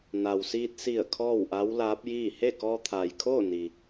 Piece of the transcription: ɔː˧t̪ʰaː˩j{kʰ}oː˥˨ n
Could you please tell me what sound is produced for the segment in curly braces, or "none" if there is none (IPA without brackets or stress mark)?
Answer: kʰ